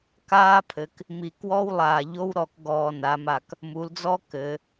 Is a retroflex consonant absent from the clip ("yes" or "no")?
yes